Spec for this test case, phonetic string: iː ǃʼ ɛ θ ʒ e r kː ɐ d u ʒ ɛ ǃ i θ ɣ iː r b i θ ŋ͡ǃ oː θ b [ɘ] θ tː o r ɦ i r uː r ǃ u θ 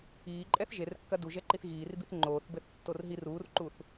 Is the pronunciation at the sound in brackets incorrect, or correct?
correct